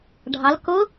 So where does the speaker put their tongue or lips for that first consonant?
retroflex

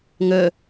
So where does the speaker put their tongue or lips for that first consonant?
velum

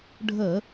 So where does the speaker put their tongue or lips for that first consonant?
retroflex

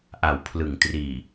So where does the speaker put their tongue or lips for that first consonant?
throat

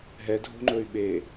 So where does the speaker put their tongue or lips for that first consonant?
throat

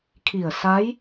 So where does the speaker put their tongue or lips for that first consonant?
velum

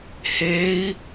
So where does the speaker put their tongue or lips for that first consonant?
throat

